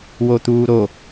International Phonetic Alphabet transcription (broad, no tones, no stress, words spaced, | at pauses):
wot̪uːɾo